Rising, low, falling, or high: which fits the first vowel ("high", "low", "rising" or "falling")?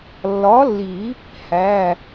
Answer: rising